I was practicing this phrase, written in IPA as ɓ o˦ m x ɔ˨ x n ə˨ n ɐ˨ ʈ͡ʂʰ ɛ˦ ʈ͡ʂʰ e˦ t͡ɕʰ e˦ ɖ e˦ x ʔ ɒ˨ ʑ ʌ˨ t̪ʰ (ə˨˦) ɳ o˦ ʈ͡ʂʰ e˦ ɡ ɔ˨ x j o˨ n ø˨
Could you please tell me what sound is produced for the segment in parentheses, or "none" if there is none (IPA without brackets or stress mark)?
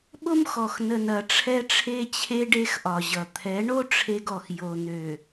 ɛ˨˦